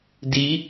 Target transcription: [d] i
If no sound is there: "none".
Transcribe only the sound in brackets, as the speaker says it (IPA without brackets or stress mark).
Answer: d